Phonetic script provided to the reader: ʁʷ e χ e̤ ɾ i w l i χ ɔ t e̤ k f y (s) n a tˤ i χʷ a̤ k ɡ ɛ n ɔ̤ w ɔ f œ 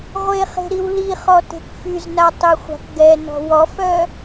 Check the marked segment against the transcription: incorrect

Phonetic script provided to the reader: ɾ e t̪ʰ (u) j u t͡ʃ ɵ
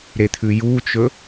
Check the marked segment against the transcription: incorrect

